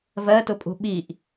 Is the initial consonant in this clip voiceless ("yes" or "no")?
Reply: no